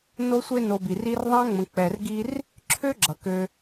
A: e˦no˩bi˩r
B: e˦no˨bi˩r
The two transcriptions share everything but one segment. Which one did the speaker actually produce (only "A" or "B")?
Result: B